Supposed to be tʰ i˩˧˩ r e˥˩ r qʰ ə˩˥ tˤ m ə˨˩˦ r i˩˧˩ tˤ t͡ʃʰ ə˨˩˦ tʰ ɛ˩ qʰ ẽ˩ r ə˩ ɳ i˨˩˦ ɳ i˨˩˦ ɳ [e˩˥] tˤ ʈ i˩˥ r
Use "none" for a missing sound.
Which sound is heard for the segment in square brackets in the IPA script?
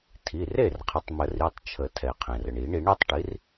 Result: e˩˥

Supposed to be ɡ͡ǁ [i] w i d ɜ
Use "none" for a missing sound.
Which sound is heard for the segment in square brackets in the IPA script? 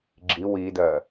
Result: i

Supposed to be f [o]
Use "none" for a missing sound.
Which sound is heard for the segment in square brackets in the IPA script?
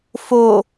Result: o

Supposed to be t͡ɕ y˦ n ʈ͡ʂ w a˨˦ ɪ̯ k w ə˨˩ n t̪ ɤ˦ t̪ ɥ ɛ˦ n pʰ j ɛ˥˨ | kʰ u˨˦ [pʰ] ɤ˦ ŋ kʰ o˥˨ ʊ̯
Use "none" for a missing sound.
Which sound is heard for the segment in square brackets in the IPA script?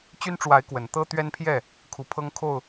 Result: pʰ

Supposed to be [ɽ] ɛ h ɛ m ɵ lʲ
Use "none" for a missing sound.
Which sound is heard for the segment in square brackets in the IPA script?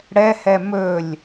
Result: ɽ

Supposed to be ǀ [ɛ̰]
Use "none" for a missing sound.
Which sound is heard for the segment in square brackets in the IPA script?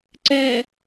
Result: ɛ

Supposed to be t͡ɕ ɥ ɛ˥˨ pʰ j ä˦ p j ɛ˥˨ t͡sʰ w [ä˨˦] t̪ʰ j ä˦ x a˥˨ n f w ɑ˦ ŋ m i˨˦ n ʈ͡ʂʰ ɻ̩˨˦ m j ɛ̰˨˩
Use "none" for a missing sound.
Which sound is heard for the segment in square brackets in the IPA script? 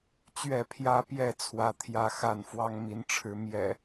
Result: ä˦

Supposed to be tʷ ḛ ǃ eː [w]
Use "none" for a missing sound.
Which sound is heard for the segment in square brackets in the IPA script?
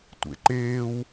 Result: w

